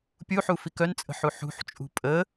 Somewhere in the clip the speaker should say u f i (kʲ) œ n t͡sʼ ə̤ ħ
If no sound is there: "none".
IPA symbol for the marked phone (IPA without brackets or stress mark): k